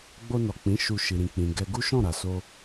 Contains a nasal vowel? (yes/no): yes